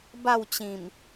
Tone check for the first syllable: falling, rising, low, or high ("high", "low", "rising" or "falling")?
falling